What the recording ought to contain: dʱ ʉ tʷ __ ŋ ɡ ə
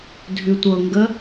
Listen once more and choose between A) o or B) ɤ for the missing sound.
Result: B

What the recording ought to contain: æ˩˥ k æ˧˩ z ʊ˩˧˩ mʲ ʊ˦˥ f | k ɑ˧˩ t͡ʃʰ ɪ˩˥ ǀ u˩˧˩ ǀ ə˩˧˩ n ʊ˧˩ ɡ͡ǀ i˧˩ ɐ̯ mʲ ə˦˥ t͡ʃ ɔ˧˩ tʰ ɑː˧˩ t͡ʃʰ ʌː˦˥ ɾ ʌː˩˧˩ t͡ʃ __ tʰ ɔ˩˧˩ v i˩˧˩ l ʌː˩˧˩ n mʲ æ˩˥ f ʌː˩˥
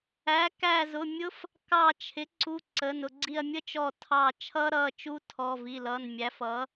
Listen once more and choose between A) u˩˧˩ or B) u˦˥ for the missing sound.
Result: B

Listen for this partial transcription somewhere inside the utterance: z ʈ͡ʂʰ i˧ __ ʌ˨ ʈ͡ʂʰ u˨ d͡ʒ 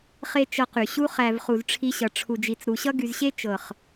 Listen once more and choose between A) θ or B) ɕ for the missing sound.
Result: B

